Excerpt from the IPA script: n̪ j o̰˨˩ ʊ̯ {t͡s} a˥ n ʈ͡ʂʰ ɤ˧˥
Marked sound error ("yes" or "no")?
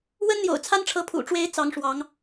yes